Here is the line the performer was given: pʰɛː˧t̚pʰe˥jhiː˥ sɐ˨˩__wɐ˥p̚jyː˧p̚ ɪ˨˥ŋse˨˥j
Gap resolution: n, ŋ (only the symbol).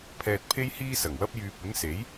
ŋ